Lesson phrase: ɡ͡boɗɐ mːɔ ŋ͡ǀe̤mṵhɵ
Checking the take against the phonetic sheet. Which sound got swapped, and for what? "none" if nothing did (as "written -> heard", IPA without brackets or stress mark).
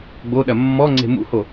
ɵ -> o